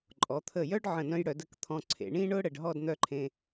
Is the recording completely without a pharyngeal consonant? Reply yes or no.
no